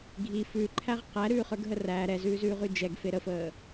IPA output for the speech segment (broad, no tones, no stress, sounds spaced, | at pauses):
ɡʱ i f ʉ ǃʰ æ ʁ q æ ɾ ʉː χ ə˞ ɡ ɦ ə r æ ɾ ɛ z ʉː z ʉː ʁ ʉ d͡ʒ ɛ ɡ f e ɾ ə f əː